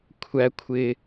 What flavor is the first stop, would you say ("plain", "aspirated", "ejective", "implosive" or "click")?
aspirated